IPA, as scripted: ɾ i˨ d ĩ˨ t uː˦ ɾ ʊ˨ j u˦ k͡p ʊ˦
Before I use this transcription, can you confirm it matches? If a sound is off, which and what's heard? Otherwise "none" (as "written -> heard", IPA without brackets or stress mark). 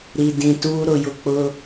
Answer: u˦ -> ʊ˦